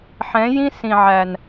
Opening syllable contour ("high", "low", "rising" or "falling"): rising